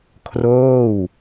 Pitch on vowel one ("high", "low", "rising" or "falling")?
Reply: falling